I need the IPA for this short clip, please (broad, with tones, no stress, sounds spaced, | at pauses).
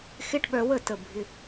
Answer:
x ɪ˧˥˧ ʈ ɓ œ˧ w ə˥˩ t ə˥˩ bʱ ɪ˧˥˧